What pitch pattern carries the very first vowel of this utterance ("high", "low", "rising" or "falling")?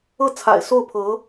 falling